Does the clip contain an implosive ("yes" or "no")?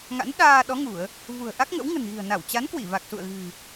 yes